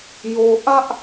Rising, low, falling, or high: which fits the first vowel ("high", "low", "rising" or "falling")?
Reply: low